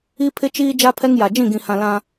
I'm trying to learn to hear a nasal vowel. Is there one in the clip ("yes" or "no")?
yes